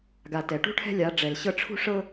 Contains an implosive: no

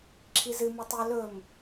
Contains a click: yes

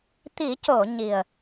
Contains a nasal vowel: no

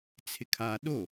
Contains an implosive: yes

